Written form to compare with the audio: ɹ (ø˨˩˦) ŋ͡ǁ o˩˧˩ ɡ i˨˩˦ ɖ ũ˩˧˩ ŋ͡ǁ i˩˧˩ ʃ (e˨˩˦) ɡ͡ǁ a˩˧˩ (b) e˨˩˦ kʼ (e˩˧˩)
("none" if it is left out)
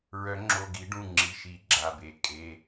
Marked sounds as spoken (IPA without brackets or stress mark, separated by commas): œ˨˩˦, i˨˩˦, b, e˩˧˩